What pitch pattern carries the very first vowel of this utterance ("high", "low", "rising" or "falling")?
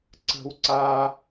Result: high